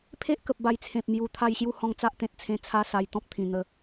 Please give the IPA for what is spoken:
pʰe˦ʔkə˨p̚ ba˧jt͡sʰẽ˨p̚ mju˨˩ t̪ʰa˥˧jɕju˥˧hɔ̃˥˧ŋ t͡sa˦ʔt̪ẽ˨t̚t͡sʰẽ˧ t͡sʰa˦sa˧j t̪ɔ̃˦p̚t̪ʰĩ˨˩ n̪ə˧

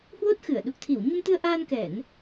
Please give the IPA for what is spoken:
hwo˦˥t̚xɨ˧˩ə̯ ɗu˨˩k̚t̪ʰi˧˩w ɲə˧mt̪ɨ˧ə̯ ʔaː˧nkɛ˧˩˨n

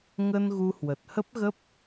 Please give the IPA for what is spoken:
ŋə˧n ɣu˧hwə˨˩t̚hə˦˥p̚ɣə˦˥p̚

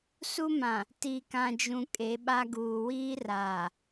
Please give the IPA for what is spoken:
su˦mã˨ | ti˨kã˨d͡ʒũ˨ kʼe˨˦ɓa˦ ɡuː˨wiː˦raː˨

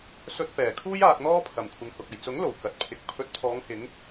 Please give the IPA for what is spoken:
sɵ˧t̚ pɛː˨˩kʰuː˥j aː˧k̚n̪ɔː˥ pʰɐ˨˩mkʷʰɪ˨ŋhʊ˨k̚ɐ˨˩j t͡sʊ˨˥ŋlo˨˩w kɐ˨t̚pʰɪ˨˥k̚ pʰɵ˨˥t̚pʰɔː˨˧ŋhɪ˨˧ŋ

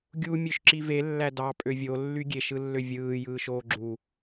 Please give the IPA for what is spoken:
ɡʲu mʲøʃǁive lːædɑ pʼøvʲo lːyɡʲeʃ ɯlːøvʲɯː jɯːʃoːɡ͡ǁu

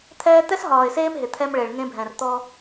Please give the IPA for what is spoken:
t̪ʰɛː˦ t̪ɛ˦sɦɒː˨ɪ̯seː˦m ɦɪ˨t̪ʰɛ˦mɭe˨ɭ ŋẽ˦bʱɛ̃˨r t̪ɔ˦

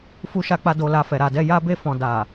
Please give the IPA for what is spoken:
fu˦ʃa˦k͡pa˦ do˧la˧fɛ˨ ɾa˨dɛ˧ja˦ be˦˨fɔ̃˨ da˨

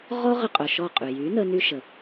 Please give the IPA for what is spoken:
ʁɔ˦ʁə˧ qʼœ˨ʃɔ˦˨qʼy˨ jy˨˦nə˧ ny˦ʃə˨

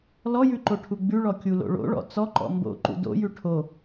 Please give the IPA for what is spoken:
lɔjʉǃoʈʰu ɡ͡bʉɭɔkʲulo̰ ɭo̰ɭɔ̰ t͡sɔǃɔ̰ mbo̰ǃṵ do̰jʉ ʈʰo

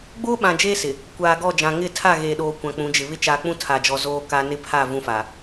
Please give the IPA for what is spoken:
ɡ͡boː˦ɓã˨d͡ʒeː˦ sɪ˨ | kʷaː˨ɡɔ˦˨d͡ʒã˨ ŋɪ˦˨tʰa˦˨ ɣeː˨ɗoː˨ kʷã˨k͡pũ˨˦d͡ʒɪ˨ βɪ˦t͡ʃaː˨k͡pũ˦ tʰa˨d͡ʒɔ˨ zoː˦ka˦ nɪ˦pʰa˦˨ vũ˦fa˨

